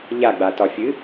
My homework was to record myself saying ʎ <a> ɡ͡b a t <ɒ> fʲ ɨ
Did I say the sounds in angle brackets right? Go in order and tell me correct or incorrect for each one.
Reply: correct, correct

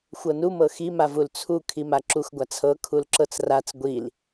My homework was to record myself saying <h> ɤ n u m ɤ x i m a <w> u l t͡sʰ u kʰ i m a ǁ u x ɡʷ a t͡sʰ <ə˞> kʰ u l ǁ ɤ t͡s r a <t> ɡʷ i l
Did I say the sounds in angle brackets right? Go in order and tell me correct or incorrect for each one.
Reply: incorrect, incorrect, incorrect, incorrect

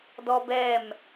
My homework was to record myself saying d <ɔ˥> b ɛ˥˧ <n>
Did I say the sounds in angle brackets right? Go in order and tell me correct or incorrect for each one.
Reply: correct, incorrect

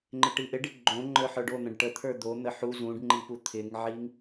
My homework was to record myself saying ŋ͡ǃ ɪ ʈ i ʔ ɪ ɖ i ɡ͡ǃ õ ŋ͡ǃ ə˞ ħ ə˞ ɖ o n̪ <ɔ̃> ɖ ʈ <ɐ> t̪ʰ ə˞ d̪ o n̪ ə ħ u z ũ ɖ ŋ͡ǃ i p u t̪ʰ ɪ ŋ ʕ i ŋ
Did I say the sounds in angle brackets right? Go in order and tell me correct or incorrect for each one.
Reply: incorrect, incorrect

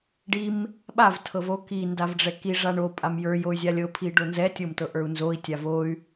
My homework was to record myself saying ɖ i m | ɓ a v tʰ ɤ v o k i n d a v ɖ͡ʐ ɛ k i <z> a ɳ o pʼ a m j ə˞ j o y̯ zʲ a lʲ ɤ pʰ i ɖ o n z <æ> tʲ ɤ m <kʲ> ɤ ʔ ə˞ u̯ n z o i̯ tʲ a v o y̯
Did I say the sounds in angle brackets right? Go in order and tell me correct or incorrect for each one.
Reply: incorrect, incorrect, incorrect

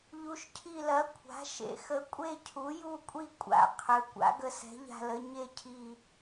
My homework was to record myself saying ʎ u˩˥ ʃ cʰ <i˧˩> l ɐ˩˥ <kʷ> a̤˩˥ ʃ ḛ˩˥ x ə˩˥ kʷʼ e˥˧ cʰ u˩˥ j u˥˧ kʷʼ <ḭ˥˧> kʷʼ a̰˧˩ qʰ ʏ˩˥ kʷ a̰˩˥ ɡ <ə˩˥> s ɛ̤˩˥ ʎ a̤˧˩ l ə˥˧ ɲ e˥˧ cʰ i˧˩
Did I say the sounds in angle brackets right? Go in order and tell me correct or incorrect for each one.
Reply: correct, incorrect, incorrect, incorrect

